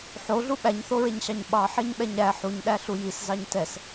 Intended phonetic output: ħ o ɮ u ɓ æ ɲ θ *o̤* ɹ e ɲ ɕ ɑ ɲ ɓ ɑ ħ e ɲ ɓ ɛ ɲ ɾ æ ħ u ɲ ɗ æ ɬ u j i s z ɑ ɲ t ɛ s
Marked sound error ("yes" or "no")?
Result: yes